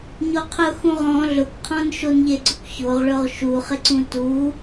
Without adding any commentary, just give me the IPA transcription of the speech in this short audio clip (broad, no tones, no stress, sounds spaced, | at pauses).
ɲ o qʰ ʊ x ũ ʁ ɔ̃ ɮ ʊ kʷ qʰ ɔ̃ n ʃ o n ʎ e ɡ͡ǀ ʊ kʷ ç o ʁ ɭ ʊ ʁ ʃ u χ ɪ ǀ ũ t u